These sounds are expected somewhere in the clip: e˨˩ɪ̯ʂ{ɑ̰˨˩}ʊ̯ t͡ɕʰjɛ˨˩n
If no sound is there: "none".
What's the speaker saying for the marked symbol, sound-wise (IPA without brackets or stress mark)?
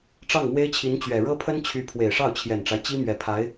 ɑ˥˩